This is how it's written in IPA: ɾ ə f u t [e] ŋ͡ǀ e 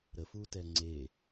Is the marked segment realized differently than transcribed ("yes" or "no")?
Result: yes